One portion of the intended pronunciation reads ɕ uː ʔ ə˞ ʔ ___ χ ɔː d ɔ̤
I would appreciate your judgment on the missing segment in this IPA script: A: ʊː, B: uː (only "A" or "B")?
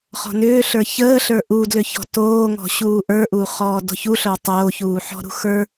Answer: B